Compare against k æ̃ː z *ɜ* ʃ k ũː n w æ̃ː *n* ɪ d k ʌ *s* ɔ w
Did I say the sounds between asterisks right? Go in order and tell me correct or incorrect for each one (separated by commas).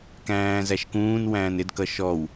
incorrect, correct, incorrect